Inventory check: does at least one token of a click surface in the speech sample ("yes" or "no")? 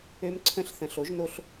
yes